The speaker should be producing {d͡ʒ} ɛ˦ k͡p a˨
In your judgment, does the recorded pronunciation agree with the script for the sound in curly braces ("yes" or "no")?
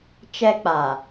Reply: no